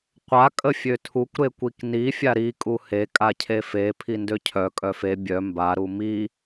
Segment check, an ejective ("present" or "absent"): present